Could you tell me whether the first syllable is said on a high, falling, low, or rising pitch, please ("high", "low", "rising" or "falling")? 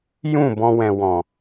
falling